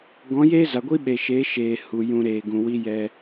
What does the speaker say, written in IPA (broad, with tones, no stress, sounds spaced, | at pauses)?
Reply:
ɡ ɔ̃˨˦ j eː˦ z a˨ ɡʷ i˦ ɓ e˨ ʃ eː˨˦ ʃ eː˨ h u˨ j ũ˧ ɾ eː˨ ɡ ũ˨ w i˦ j ɛ˧